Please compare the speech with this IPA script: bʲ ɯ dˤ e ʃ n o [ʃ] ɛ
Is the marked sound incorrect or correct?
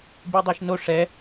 incorrect